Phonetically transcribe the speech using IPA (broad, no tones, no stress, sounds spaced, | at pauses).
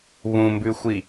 β ũ m b ʉ xʷ i